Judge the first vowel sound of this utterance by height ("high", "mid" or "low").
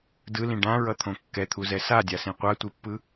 high